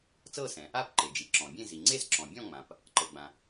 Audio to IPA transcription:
t͡s ɤ˥˨ s ɛ̃˩ | a˥˨ p ǃ e˩ d͡ʒ i˩ ǁ ɔ̃˩ bʲ ẽ˥˨ z i˩ ŋ͡ǀ e˥˨ z ǁ ɔ̃˩ bʲ ɔ̃˥˨ ŋ͡m ã˩ p | ǃ ɤ˩ ɡ͡b ã˩

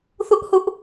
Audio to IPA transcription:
θ ʊ˦ ʔ h ʊ˦ ʔ

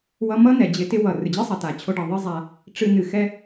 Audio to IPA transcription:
w ʌ˧ m ʌ˦ n ɛ˨ d͡ʑ ɪ˧ t ɪ˦ w ʌ˨ r ɨ˨ d͡ʑ ɨ˦ sˤ ʌ˨ t a˨ t͡ɕʰ o˧ ɖ ʌ˨ ðˤ ɨ˦ zˤ a˧ | ʈ͡ʂ ɨ˧ n ɨ˨ x ɛ˧

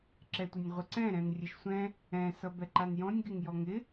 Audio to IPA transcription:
ǁ ɛ tʷ ɘ nʲ ʁʷ ɪ ǀ ɛ̃ ɾ ɛ̃ n rʲ ɘ ʃ sʷ ɛ̃ | ɛ̃ s ʌ b ɛ ǃ a n j ɔ̃ nʲ ɡ ɪ ŋ j ɔ ŋ ɪ

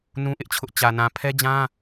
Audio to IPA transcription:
n ũ˦ ʔ ɪ˦ ʔ t͡ɕʰ ʊ˦ ʔ t͡ɕ ä˨ n ã˨ pʰ ɛ˦ d͡ʑ ã˦

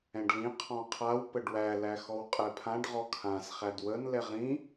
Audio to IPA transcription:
ɛ̃ ɖ l ĩ qʰ ɔ̃ qʰ a w p ə ɖ w æ l æ x ɔ w qʼ ɛ pʰ ã ɖ ʁ ɔ kʰ ã s χ æ d w ə n l ɛ ʁ ĩ

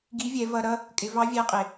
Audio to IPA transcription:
ɡ i˧˥ vʲ ɛ˩˧ v ʌ˧ ɾ ʌ˥ | kʼ ɪ˩˧ v ɑ˧˥ vʲ æ˧˥ qʼ ɪ˩

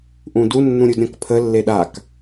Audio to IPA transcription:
ʔ ũ d u nː ũ ɾʲ u d ɾʲ ɔ̃ k pʰ ə lː e ɗ a k

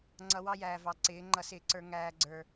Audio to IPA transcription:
ŋ͡ǀ ʌ˨ w ɑ˦ j æː˨ v ɑ˨ ǀ ɪː˨˦ ŋ͡ǃ ʌ˨ s ɪː˨ ǀ ə˞˨ ŋ æː˨ ɡ͡ǀ ə˞˨

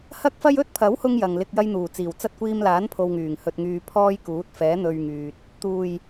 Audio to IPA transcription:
h ɐ˥ k̚ f ɐ˥ j ɵ˥ t̚ pʰ ɐ˨˥ w h ʊ˥ ŋ j ɐ˨ ŋ l ɪ˧ k̚ j ɐ˥ j n̪ uː˨˩ t͡s iː˨˩ w t͡s ɐ˥ t̚ kʷ iː˧ m l aː˨˥ n pʰ o˧ w ŋ yː˨˩ ŋ h ɵ˧ t̚ ŋ yː˧ pʰ ɔː˥ j k uː˨˥ t̚ f ɛː˨˥ n̪ ɵ˧ ɥ ŋ yː˨ t̚ | t̪ uː˨˩ j

